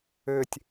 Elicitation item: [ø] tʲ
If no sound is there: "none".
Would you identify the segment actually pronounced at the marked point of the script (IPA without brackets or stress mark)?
ø